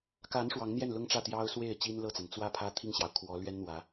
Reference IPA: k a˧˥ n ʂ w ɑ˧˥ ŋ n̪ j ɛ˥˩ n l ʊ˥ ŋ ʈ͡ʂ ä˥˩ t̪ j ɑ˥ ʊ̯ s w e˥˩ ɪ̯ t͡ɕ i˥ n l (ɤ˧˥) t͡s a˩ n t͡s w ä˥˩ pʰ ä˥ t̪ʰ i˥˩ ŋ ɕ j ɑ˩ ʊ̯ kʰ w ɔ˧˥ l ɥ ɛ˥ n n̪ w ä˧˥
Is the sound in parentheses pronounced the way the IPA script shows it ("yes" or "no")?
no